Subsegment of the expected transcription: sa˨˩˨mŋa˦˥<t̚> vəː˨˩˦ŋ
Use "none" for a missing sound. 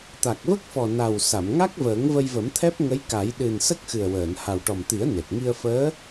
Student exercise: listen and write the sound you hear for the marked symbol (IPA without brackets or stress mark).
k̚